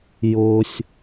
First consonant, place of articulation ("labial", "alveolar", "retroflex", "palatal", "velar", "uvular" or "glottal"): palatal